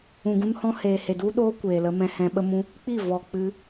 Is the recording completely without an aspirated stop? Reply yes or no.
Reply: yes